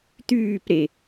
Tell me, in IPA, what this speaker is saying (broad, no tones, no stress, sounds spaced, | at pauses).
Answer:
t̪ yː p ɾ e